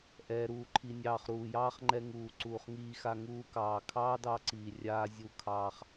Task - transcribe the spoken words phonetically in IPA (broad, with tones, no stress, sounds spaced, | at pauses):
ʔ ɛː˨ ɾ uː˨ ǃʰ i˨ nʲ ɑː˨ χ ɾ uː˨ j ɑː˦ χ ŋ͡ǃ ɛ˧ ŋ uː˨ ǀ uː˨ χ ŋ iː˧ x a˧ ŋ uː˧ k ɑː˨ kʰ ɑː˦ d ɑ˧ ǀ iː˨ rʲ aː˧ zʲ u˧ kʰ ɑː˧ χ